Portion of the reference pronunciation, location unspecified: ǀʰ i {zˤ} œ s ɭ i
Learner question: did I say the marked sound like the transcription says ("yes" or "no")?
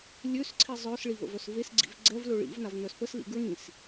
yes